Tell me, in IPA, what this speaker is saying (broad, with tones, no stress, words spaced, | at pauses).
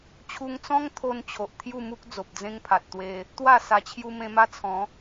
t͡ɕʰu˧ŋt͡sɔ̃˦ŋt̪ʰo˧n t͡ɕʰo˨ʔt̪ʰju˥˧mu˦k̚ d͡zo˨p̚d͡zẽ˦ŋpʰa˨t̚t̪we˧ | t̪wa˥˧sa˧t͡ɕʰju˦ mẽ˧ma˦t͡sʰɔ̃˨˦